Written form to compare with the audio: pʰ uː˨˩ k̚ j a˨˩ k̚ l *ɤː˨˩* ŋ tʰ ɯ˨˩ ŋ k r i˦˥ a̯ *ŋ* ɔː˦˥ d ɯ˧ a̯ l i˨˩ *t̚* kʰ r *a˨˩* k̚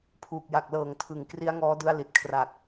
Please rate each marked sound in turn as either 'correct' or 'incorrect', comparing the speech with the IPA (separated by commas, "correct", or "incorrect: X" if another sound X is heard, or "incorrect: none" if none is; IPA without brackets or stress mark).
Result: correct, correct, correct, correct